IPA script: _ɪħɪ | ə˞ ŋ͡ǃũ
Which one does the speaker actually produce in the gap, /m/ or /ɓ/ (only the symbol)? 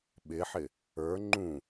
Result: ɓ